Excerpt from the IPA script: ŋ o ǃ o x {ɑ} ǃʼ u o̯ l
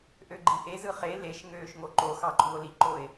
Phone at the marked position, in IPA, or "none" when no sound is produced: ɑ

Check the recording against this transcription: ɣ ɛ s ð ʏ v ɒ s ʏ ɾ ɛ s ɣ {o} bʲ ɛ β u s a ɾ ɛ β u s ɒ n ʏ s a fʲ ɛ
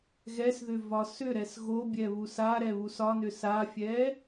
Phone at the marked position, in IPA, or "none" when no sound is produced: o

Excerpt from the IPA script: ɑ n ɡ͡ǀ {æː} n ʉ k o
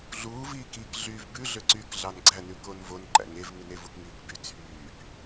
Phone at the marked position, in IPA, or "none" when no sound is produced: æ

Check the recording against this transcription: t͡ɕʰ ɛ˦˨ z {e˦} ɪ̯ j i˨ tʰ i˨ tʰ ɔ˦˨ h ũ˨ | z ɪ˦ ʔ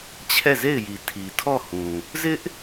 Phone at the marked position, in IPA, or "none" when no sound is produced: e˦˨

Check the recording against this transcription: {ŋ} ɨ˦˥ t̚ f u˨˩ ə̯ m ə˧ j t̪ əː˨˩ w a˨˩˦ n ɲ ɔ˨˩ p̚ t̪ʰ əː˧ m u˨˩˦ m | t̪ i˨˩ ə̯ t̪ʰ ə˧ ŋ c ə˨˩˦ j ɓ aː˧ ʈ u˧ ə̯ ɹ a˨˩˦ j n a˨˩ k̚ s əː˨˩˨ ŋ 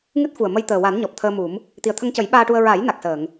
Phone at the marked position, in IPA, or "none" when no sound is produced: ŋ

